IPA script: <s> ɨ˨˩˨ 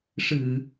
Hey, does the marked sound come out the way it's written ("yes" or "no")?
no